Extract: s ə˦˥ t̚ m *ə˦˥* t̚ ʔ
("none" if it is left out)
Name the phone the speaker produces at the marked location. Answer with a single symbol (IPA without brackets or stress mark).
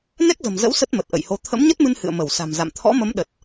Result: ə˨˩